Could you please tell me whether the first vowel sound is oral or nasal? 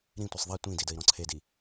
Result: nasal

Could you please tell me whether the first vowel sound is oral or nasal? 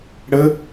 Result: oral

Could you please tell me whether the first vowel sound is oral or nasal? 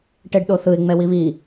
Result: oral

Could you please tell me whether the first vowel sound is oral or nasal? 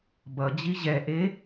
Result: oral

